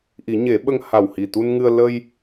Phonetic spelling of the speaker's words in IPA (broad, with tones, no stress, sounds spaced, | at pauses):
ʔ i˨˩˦ ɲ e˨˩˦ ɓ ə˧ ŋ h a˨˩ w h i˨˩ t̪ u˧ n ŋ ɨ˧ ə̯ l ə˧ j